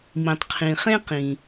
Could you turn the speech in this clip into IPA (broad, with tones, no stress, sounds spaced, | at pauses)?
m ĩ˩ tˤ qʰ ĩ˩ χ ẽ˥ q ĩ˩